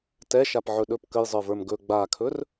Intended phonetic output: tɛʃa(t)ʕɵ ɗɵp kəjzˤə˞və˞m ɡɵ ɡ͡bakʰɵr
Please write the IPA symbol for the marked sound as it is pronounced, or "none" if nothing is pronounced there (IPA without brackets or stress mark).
p